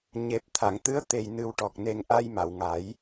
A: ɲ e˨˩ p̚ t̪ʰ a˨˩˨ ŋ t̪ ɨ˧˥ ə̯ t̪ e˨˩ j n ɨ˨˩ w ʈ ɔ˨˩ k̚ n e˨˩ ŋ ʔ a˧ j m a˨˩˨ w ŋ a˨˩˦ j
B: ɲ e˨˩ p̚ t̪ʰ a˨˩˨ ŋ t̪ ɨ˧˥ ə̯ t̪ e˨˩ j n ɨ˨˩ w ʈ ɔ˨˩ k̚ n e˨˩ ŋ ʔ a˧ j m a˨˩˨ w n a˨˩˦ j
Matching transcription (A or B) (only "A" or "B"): A